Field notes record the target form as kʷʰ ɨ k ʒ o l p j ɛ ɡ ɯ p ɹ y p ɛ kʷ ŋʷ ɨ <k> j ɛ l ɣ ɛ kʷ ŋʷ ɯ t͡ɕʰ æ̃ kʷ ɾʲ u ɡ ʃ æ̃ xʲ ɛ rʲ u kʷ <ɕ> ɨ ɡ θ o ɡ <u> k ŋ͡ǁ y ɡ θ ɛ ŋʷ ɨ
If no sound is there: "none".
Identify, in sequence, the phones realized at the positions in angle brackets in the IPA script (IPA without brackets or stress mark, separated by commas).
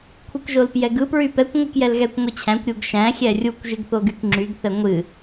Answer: k, ʒ, y